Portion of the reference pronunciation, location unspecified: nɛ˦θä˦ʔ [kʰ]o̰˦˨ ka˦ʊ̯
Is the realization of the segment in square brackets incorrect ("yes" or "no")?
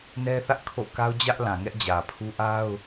no